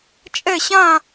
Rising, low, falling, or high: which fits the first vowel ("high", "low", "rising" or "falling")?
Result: falling